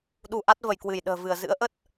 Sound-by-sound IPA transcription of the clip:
ɗ u˧ ʔ a˦˥ t̚ v ə˧˩ j k w ɨ˧˩ j ɗ ə̤ː˨˩ v ɨ˧˩ ə̯ z ɨ̰˧˥ ə̯ ʔ ə˦˥ t̚

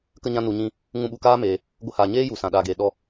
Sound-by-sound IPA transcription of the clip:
k ə˧ ɲ ã˧ n u˨ ɲ ĩ˧ | ŋ ũ˧ ɓ u˨ k aː˦ m eː˨ | ɡʷ ə˧ h a˨ ɲ eː˦ j u˨ s ã˨ ɗ aː˨ ɡ eː˨ ɗ ɔ˧

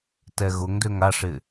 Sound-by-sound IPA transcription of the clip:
t ɛ ɣ ʊ ŋ d ø ŋ a ʂ ɪ

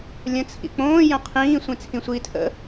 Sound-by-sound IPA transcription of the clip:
lʲ ə̃ t͡sʰ ḭ k͡p õː j ə̃ qʰ ĩː sʷ ĩ t͡sʰ ĩ sʷ iː tʰ ə̰

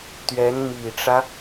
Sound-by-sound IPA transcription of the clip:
t̪ ɥ ɛ˧˥ n m i˨˩ ʈ͡ʂ ä˦

